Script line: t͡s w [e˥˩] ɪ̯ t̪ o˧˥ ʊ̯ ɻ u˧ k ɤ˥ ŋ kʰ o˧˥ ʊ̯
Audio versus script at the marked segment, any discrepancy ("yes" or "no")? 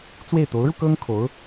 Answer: no